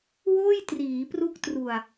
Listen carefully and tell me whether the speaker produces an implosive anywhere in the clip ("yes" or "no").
no